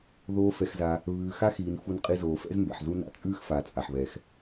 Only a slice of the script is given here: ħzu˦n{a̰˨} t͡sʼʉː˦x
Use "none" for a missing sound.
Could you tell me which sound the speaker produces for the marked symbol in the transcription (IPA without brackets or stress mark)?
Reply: a̰˨